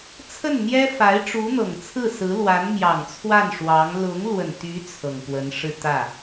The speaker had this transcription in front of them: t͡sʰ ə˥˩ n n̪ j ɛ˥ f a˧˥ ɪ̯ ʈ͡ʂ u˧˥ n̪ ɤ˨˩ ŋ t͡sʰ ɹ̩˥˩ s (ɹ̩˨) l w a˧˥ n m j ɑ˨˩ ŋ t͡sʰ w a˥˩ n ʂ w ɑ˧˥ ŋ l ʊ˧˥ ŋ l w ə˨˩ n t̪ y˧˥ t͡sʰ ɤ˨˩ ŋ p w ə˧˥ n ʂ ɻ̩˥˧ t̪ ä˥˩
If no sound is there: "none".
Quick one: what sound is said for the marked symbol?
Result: ɹ̩˧˥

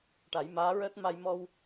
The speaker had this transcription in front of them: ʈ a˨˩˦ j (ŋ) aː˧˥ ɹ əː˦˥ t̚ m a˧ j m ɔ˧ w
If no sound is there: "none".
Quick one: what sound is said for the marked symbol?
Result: m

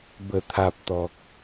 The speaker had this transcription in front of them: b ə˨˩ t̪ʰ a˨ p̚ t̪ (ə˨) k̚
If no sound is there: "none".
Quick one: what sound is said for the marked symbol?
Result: ɔ˨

